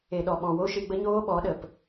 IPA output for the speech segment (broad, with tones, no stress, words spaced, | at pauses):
e˨ɗɔ˨ɓɔ̃˨ wo˦ʃɨ˧ɡ͡bə˦ɲoː˦ ɓɔ˨˦ɗə˨p